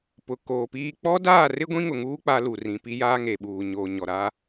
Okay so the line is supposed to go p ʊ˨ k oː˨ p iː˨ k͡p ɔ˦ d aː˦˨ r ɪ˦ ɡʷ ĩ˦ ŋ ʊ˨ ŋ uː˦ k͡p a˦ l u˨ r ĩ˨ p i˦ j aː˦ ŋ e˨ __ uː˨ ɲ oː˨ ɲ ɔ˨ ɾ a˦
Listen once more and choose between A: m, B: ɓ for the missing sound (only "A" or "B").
B